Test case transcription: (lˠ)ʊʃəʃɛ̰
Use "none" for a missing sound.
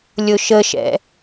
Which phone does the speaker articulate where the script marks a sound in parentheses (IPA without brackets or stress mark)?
lʲ